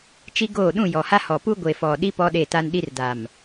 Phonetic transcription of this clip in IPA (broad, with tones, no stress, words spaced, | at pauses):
t͡ʃi˦ɡoː˦˨ ɗũ˦˨ jɔ˨ha˦hɔ˨ pu˦ɡʷe˨fɔ˨ɗi˦ pɔ˦ɗe˦˨ta˦n ɗi˦r da˨m